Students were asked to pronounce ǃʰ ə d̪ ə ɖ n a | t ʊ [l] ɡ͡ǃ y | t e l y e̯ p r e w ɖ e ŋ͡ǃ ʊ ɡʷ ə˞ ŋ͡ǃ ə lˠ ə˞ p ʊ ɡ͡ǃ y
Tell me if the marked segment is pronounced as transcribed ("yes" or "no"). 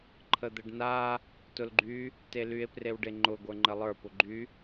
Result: yes